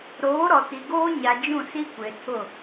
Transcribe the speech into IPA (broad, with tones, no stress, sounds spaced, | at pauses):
ɾ oː˨˦ ɾ ɔ˨ t i˨ ɡ oː˦ ɲ a˨ d͡ʒ ũ˦˨ s i˦ kʷ e˨ tʰ ʊ˦˨